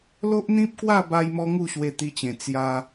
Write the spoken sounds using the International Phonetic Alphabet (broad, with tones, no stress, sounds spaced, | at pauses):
l o˦ ʔ n̪ ĩ˦ p̚ k w a˥˧ b a˧ j m ɔ˧ ŋ u˥˧ ɕ w e˧ t̪ i˧ t͡ɕ ẽ˨˩ t͡s j a˧